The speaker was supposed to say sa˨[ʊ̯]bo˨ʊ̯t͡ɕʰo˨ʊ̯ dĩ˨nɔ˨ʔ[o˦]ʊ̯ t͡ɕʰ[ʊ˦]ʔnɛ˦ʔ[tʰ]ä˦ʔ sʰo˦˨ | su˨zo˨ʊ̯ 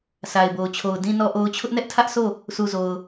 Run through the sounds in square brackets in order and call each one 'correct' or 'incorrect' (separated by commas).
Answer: incorrect, incorrect, correct, correct